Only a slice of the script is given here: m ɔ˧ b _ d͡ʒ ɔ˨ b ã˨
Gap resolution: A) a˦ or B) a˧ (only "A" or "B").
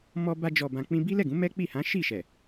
B